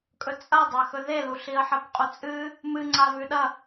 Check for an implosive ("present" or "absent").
present